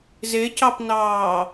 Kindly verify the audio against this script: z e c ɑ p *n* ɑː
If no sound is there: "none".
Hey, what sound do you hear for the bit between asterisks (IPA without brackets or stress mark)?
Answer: n